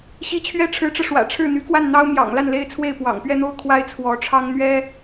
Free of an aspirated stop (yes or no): no